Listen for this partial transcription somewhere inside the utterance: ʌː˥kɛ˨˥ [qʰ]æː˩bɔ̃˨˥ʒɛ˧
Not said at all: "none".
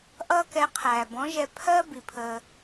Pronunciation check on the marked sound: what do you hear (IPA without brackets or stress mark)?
qʰ